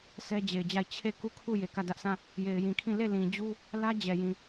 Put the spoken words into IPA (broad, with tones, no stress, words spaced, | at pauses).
sʰɛ˦d͡ʑe˨ɪ̯d͡ʑa˦˨ɪ̯ t͡ɕʰe˦˨ ku˦˨kʰu˦˨ je˨kä˦˨dä˦ʔsã˦˨ | je˨ɪ̯jĩ˨kʰĩ˦˨ le˦˨ lĩ˨d͡ʑu˦ | lä˦ d͡ʑɛ˨jĩ˨